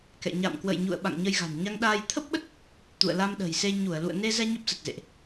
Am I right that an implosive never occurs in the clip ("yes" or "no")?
no